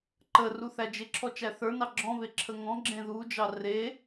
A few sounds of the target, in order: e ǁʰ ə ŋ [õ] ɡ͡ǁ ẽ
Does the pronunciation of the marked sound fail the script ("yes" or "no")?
yes